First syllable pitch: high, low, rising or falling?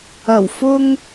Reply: low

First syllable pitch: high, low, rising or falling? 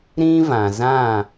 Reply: high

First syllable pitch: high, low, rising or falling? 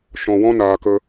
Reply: low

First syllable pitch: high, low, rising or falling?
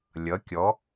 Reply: rising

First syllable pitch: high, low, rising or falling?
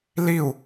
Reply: falling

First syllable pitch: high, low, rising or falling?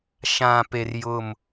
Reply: low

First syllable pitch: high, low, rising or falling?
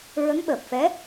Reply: rising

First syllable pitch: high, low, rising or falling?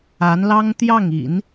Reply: rising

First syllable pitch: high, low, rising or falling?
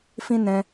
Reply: high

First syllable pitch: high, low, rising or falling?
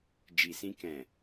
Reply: low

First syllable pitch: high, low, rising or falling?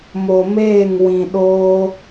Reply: low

